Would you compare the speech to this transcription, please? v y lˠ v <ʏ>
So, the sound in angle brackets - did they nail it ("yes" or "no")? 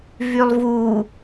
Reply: no